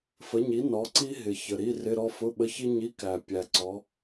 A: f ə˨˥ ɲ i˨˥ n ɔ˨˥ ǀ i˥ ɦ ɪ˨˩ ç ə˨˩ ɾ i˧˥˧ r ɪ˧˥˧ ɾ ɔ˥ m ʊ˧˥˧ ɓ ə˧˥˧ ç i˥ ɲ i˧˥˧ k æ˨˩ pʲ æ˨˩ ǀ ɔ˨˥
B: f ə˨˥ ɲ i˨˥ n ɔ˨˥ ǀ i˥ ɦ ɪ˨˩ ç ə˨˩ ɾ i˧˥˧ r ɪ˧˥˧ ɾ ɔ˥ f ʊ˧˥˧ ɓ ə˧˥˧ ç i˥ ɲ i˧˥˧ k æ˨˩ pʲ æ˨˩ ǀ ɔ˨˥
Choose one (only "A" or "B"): B